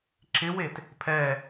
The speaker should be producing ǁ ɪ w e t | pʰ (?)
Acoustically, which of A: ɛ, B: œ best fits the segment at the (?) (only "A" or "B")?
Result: A